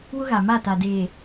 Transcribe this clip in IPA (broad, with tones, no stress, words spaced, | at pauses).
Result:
wʊ˦ɣa˨ ma˦˨ta˨deː˨